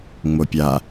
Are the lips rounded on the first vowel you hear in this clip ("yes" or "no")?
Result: yes